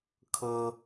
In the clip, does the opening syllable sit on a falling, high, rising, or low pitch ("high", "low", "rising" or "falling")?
high